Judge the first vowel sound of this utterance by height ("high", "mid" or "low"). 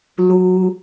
high